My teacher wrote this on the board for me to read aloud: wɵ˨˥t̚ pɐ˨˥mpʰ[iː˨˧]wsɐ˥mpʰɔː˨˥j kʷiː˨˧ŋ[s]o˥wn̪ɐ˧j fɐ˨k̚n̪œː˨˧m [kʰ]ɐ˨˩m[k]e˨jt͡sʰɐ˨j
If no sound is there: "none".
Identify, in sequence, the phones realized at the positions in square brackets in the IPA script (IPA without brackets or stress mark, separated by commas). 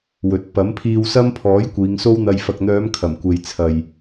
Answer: iː˧, s, kʰ, kʷ